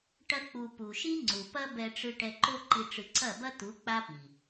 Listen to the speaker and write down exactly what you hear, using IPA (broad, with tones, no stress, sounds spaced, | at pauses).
ʈ ɐ˧ k͡p u˨ p u˨ ʃ i˦ ŋ͡ǀ u˨ p ɐ˦ b ɛ˧ ʈ͡ʂ ɨ˧ ʈ ɛ˧ ǃ o˦ ǃ i˧ ʈ͡ʂ ɨ˧ ǀ ɐ˦˨ b ɐ˦ t̪ u˨˦ k͡p a˦ p i˨